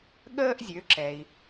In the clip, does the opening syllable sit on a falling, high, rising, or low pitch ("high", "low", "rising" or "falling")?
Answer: high